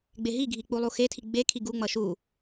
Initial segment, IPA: ɡ͡b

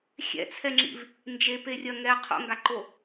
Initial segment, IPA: xʲ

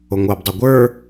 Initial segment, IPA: o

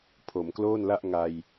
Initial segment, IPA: pʰ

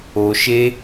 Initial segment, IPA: o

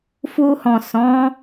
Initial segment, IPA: f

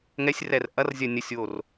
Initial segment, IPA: ŋ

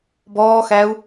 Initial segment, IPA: b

